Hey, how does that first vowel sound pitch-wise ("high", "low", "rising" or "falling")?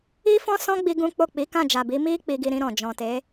high